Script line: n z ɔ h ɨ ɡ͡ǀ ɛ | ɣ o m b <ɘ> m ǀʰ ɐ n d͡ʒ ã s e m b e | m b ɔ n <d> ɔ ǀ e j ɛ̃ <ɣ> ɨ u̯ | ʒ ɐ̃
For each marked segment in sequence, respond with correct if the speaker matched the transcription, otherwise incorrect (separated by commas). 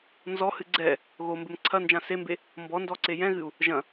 correct, correct, correct